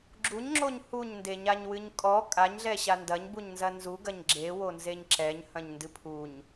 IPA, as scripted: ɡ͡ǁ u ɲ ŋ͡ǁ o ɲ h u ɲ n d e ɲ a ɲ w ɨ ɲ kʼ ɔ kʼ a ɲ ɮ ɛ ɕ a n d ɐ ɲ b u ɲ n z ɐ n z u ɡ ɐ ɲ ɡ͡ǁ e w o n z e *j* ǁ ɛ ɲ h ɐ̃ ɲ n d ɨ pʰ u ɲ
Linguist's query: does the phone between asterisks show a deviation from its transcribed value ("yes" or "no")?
yes